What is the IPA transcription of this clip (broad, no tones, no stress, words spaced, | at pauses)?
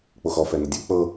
k͡poxɔ fɛnədʲɛ k͡pɤ